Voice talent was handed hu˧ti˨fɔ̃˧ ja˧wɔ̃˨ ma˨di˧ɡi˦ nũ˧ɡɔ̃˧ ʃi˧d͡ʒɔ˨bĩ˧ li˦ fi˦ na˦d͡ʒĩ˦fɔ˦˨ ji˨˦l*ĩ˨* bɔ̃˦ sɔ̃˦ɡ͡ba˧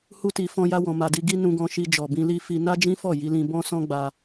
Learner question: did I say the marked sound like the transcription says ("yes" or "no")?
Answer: no